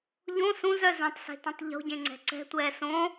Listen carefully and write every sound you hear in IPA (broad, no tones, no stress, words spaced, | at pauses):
ʎõ sũzœ zœ̃tˤse̤tũtˤ ʎo̤ɟẽŋ͡ǀɛ̤ ǀɛ̤tʷɛː sõ